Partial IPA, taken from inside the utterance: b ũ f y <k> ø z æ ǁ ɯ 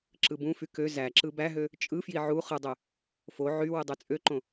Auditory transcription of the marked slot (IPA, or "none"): k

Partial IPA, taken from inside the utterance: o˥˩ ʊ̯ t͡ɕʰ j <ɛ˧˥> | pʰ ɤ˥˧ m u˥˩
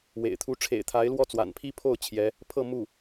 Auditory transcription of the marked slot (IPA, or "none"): ɛ˧˥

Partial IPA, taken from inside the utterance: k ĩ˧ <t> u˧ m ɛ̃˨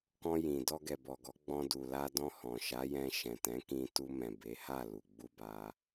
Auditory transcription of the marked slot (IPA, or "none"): t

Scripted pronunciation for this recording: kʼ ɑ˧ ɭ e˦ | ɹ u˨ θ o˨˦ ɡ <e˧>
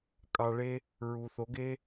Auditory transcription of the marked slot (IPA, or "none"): e˦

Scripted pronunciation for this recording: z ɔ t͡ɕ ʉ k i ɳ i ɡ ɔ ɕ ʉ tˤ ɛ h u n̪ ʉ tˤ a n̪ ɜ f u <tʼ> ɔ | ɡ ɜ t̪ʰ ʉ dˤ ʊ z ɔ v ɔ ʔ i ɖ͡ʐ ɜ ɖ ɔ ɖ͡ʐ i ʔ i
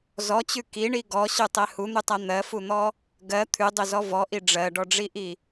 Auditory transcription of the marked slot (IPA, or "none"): n̪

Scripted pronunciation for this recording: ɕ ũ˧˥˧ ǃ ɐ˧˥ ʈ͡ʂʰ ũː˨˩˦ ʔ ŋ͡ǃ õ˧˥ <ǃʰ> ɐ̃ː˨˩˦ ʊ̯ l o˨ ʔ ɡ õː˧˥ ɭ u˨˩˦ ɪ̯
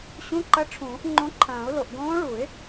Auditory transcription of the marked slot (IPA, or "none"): ǃʰ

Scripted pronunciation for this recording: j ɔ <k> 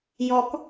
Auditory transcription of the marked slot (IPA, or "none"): k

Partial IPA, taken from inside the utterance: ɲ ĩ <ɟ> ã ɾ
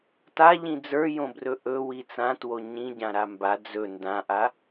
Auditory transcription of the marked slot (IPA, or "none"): ɟ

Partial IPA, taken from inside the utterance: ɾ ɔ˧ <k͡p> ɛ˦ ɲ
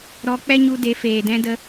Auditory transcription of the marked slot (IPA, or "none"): k͡p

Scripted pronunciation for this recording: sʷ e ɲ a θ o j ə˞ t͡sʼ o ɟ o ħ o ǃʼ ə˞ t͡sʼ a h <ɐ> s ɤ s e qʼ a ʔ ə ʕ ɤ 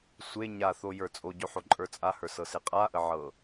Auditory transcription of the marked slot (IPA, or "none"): ə˞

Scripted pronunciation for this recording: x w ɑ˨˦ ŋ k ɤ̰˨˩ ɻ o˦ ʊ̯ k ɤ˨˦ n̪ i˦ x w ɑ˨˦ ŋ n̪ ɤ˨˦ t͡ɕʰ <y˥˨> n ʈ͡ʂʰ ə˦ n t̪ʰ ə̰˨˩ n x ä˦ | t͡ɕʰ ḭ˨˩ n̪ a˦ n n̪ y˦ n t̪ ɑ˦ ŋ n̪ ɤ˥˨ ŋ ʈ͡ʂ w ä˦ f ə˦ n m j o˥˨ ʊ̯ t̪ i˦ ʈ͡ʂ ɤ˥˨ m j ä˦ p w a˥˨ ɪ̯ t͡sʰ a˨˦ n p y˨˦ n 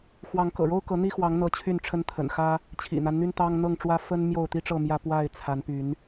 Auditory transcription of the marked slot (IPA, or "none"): y˥˨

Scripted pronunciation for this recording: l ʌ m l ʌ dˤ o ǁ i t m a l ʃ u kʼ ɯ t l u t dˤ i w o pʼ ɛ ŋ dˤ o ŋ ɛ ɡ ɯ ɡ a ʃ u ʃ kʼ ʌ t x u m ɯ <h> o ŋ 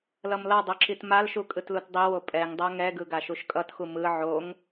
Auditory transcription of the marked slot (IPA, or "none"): ʕ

